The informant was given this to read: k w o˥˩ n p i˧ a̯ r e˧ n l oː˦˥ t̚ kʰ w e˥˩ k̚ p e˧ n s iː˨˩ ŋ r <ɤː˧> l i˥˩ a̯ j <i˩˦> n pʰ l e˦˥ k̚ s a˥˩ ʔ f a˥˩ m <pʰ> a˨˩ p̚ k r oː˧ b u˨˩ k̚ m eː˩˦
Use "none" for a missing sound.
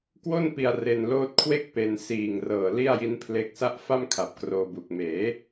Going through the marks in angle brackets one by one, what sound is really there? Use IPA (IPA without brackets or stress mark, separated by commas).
ɤː˨˩, i˦˥, kʰ